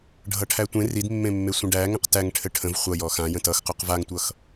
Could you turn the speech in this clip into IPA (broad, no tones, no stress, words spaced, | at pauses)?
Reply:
ɖʱʌʈʰætʷẽ ridmːẽmːe sʷə̃ɖæŋə̃q tæŋ ʈʰɘʈʰə̃v χʷʌ jɔxãjə̃ tʌxqoq vaŋtʷʌx